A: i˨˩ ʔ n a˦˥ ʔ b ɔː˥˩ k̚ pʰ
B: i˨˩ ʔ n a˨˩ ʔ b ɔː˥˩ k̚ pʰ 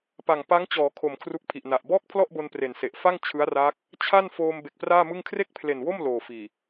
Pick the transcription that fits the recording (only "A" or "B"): B